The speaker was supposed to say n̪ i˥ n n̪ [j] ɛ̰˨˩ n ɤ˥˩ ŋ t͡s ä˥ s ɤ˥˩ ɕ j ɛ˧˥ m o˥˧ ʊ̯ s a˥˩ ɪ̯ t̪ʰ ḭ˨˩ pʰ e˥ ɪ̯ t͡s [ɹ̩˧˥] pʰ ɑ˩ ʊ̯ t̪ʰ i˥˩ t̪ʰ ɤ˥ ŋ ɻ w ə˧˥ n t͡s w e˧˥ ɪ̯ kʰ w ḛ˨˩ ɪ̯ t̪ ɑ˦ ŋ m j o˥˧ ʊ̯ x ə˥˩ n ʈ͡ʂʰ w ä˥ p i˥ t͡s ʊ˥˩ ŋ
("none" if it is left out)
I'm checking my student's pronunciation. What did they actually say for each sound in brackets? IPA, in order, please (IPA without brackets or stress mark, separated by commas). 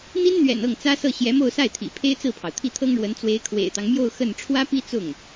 ɥ, ɹ̩˥˩